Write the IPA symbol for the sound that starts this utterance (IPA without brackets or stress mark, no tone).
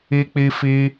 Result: i